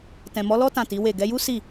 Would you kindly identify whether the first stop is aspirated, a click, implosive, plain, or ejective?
plain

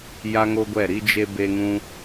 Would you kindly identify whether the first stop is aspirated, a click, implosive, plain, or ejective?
plain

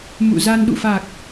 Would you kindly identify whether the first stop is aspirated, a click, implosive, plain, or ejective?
implosive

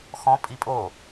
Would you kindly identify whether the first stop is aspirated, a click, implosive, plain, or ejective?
ejective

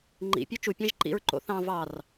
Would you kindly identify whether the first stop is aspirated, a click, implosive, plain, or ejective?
click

